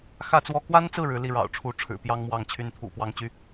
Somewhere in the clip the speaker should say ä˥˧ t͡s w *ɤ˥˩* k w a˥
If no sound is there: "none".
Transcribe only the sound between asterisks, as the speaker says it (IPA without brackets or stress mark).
ɔ˥˩